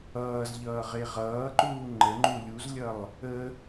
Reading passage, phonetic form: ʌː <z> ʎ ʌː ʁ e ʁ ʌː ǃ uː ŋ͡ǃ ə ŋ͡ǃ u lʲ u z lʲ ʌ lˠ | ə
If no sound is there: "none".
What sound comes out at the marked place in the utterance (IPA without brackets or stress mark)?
z